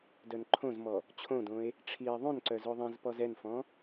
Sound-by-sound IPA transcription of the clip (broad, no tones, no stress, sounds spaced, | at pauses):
d œ n ǃʰ õ z m ɔ | t͡ɕʰ õ d õ e̯ | ʈ͡ʂʰ i e̯ ðˤ õ n ǀ œ z o ðˤ ĩ z p ɔ z ɛ n f ɔ̃